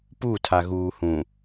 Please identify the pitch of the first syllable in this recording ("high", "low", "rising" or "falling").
falling